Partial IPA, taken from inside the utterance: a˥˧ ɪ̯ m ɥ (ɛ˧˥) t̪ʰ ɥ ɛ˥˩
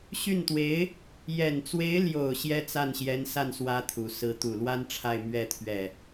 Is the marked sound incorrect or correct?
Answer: incorrect